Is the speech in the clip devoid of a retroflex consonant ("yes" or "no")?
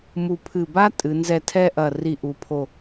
yes